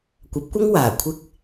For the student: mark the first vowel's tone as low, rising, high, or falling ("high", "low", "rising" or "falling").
rising